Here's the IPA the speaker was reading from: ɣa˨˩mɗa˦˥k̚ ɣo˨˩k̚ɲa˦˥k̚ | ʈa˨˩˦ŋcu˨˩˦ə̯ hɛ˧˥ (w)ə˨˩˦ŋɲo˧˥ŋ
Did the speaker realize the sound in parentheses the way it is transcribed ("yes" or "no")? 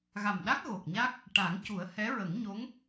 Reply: no